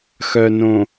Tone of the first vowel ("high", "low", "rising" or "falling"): low